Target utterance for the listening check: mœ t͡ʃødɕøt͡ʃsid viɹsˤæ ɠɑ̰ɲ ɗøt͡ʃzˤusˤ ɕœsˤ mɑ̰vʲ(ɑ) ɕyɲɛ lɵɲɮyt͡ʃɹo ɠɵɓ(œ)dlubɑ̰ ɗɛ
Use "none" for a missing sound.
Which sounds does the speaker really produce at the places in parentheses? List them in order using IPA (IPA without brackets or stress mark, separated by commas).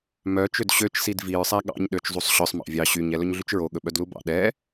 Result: ɑ, œ